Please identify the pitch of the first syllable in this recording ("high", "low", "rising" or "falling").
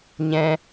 high